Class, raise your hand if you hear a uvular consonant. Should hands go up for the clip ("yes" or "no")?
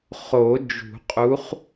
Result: yes